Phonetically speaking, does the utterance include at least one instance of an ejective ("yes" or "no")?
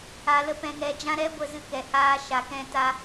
no